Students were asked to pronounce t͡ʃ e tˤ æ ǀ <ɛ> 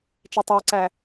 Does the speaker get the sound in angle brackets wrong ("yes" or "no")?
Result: yes